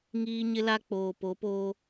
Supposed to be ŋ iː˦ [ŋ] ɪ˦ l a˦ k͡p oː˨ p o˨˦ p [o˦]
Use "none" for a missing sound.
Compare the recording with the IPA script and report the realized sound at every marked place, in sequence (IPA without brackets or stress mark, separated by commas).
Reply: ɲ, oː˦